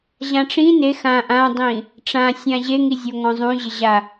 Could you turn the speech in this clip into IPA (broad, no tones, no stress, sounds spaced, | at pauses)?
ʑ ã ʈ͡ʂ ĩ n e x ã ʔ ã dˤ ĩ | ʈ͡ʂ ã sʲ ã ʑ e ŋ i zʲ o ŋ ɔ̃ zˤ ũ ʑ ɪ ʑ a